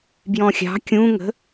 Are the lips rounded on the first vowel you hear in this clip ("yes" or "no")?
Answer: yes